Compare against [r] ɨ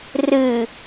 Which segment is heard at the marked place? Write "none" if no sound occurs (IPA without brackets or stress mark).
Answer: r